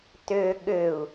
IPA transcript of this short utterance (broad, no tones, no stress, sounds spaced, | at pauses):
t ø ɠ ø u̯